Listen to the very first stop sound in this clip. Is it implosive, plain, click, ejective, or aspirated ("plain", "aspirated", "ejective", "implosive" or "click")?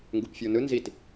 plain